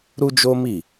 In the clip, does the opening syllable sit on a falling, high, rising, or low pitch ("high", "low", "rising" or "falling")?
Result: high